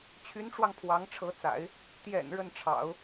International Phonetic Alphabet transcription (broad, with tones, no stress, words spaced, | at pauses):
t͡ɕʰy˧˥nʈ͡ʂwɑ˧ŋ pʰwɑ˧˥ŋʈ͡ʂʰɤ˧˥t͡sa̰˨˩˦ɪ̯ | t̪jɛ̰˨˩n ɻə˥˩nʈ͡ʂʰɑ̰˨˩˦ʊ̯